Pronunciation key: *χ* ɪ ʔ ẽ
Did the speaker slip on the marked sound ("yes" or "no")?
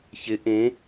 yes